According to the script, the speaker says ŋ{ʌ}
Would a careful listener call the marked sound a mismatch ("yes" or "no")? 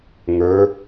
yes